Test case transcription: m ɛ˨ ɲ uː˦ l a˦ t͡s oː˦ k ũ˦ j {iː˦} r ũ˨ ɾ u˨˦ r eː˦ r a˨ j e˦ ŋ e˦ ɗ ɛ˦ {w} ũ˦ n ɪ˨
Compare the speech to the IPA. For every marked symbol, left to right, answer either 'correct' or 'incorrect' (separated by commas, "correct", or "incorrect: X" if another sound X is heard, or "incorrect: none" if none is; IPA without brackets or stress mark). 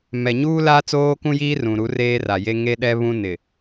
correct, incorrect: β